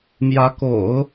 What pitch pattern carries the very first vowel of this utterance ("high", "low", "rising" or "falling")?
rising